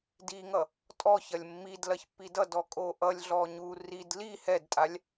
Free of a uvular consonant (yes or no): yes